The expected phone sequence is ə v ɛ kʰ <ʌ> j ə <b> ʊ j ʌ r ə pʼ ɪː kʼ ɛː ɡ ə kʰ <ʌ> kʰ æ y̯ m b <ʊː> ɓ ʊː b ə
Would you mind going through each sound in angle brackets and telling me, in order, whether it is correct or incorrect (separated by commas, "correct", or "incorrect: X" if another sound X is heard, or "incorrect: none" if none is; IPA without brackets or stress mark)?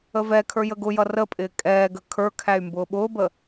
incorrect: ə˞, incorrect: ɡ, incorrect: ə˞, correct